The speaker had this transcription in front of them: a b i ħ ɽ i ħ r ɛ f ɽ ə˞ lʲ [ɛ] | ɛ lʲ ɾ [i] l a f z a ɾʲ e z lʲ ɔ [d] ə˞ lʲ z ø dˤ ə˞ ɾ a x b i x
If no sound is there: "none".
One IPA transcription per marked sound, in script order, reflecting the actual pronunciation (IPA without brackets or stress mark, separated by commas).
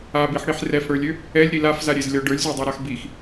ø, i, ɖ